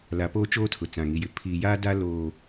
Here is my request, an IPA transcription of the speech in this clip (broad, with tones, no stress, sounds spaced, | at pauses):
l a˨ p oː˦ t͡ʃ oː˦ tʰ ʊ˨ t͡s ã˨ ŋ i˨ j ɪ˨ pʰ iː˨ j aː˦ d a˦ l oː˨